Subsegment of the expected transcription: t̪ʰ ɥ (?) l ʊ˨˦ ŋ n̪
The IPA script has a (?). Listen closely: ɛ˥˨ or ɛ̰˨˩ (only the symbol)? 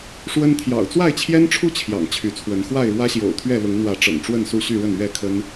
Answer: ɛ˥˨